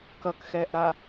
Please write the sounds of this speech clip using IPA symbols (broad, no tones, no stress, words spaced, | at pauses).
kʌkxɛːʔɾa